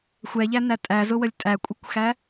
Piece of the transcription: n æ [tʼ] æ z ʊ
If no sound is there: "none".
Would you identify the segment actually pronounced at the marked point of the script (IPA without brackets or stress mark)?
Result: tʼ